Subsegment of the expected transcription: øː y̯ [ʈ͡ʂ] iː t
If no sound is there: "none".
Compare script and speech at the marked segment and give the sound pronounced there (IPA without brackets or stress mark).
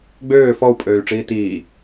ʈ͡ʂ